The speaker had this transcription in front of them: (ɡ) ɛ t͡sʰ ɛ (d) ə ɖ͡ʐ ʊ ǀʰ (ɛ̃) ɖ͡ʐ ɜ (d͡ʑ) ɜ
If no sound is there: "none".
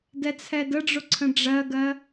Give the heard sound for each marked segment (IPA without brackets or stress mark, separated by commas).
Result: d, d, ə̃, ɡ